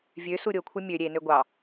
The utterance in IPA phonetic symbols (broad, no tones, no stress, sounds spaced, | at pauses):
vʲ ø s u ɾʲ o kʷʰ ɯ mʲ ø ɾʲ e n ø ɡʷ ɑ